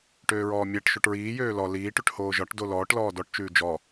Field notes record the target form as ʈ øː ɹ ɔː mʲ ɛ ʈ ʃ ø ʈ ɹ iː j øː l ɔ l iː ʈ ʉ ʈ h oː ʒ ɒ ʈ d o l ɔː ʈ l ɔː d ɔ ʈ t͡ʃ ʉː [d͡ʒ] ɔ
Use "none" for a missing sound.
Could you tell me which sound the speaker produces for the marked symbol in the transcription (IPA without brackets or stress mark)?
d͡ʒ